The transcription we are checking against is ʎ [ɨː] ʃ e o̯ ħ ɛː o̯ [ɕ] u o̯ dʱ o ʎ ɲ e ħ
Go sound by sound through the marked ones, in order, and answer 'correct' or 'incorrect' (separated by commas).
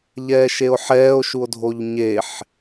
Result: incorrect, incorrect